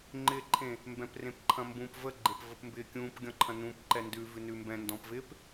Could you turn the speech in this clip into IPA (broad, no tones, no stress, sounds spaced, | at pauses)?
ŋ͡ǃ ɪ ǃʰ ẽ | m b ɛ̃ p r ẽ p ǃʰ ɐ̃ m b ũ p v ə ɡ͡ǃ e p v ə p m b ɪː kʲ ũː p ɡʲ ɔ̃ ǃʰ ɐ̃ n ũ p ǃ ɛ n d ʉ v ʉ n ʉ m b ɛ̃ n d ɔ̃ p v ɪ p